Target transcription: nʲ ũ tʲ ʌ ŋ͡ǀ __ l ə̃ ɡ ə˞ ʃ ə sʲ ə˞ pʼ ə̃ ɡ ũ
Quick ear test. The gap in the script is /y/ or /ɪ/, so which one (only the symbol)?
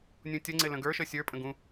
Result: ɪ